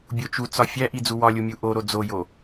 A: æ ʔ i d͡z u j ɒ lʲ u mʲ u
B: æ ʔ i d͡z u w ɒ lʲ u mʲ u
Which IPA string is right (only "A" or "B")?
B